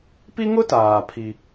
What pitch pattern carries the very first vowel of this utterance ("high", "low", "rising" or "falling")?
high